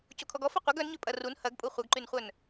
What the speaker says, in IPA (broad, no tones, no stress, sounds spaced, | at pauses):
c o kʰ ɔ ɡ ɔ f ɔ qʷ ɐ ɡ œ n ɲ ø pʼ ɐ r u n h ɐ ɡ pʼ u χʷ œ ɡ ǃ y n χʷ œ n